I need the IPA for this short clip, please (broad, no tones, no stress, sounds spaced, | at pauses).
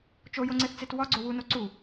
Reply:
t͡ʃ o j o ŋ͡ǀ e θ t͡s e t w ɒ ɡ͡ǀ o w u n o ǀ u